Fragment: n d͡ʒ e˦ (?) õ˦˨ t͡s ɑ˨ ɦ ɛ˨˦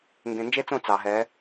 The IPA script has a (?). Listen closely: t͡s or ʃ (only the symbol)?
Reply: t͡s